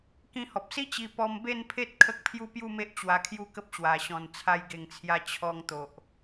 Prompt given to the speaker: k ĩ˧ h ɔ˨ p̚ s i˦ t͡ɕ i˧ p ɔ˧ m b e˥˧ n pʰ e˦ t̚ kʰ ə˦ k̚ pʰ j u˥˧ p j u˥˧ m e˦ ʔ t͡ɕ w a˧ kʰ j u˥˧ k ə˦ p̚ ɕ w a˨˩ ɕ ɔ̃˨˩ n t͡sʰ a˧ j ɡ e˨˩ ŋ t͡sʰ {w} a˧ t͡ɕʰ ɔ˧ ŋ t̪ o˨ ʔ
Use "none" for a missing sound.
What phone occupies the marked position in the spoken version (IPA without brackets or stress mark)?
j